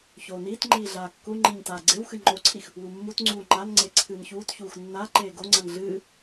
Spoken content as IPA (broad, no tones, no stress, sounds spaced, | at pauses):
ç oː n iː t ŋ͡ǃ iː ɮ aː kː u ŋ͡ǃ i ɲ t aː ɡ͡ǀ e w x ɨ ŋ͡ǃ o ǀʰ i x | w u mː u t ŋ͡ǀ uː ŋ͡ǃ a n ŋ͡ǀ e ǀʰ ɨː n ç uː t ç uː x nː a ǃ eː ɡ o ŋ͡ǀ ɐ n ɮ ɨː